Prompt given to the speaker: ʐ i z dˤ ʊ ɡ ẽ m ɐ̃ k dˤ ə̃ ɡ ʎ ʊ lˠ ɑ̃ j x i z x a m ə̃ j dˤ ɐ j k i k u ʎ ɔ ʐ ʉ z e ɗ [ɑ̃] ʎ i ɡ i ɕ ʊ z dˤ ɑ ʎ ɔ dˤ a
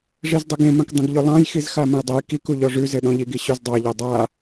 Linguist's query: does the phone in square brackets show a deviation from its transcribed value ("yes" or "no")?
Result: yes